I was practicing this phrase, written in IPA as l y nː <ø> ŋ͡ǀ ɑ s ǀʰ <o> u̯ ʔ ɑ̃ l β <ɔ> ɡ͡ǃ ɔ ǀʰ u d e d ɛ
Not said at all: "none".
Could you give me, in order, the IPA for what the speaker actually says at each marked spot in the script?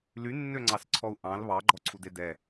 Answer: ø, ɔ, ɑ

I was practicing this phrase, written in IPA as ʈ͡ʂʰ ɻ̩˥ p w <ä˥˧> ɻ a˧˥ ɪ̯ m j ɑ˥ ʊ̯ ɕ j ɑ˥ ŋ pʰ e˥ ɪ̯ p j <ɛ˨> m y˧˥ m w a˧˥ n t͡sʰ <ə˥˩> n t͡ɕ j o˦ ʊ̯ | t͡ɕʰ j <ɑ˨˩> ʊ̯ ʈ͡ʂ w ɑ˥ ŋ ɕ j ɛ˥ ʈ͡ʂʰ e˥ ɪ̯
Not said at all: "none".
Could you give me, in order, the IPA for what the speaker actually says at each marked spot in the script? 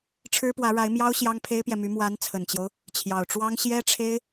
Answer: ä˧˥, ɛ˨, ə˨˩, ɑ˨˩

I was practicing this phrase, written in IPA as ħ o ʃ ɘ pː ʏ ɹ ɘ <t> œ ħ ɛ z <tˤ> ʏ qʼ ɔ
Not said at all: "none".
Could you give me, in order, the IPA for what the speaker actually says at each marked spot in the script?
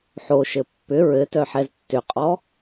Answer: t, tː

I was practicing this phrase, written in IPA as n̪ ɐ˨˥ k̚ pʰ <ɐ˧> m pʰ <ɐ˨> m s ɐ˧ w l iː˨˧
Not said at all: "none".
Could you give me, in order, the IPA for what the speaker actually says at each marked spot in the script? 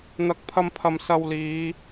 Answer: ɐ˧, ɐ˨

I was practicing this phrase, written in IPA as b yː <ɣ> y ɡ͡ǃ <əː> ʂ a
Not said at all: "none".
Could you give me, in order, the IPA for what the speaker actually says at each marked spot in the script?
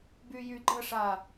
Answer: j, əː

